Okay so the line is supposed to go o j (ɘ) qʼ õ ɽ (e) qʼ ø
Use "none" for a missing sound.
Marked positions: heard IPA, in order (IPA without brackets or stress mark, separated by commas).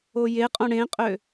e, ẽ